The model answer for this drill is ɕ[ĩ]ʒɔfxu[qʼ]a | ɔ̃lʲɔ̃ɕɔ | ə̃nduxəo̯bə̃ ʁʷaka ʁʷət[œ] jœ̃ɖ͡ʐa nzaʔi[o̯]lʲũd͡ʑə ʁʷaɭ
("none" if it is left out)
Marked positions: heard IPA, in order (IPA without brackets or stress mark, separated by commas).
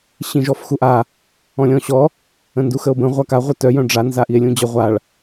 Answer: ĩ, ʔ, œ, e̯